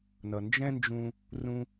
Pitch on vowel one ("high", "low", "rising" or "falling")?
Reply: low